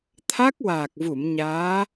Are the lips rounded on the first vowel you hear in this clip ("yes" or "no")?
no